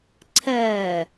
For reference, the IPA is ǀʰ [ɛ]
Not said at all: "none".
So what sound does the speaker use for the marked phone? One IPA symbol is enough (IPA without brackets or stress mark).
ɛ